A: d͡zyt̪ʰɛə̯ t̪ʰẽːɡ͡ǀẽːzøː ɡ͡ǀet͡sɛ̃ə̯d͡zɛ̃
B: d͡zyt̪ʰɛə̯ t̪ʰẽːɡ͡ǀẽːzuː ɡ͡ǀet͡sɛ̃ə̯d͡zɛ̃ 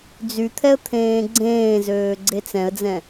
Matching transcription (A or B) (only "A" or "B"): A